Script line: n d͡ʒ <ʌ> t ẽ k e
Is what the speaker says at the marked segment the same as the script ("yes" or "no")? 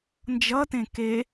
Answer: yes